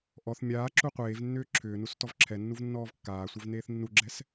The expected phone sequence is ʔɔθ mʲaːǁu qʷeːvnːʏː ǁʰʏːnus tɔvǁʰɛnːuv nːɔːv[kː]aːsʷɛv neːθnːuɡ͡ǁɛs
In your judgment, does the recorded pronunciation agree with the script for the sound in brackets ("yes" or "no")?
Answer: yes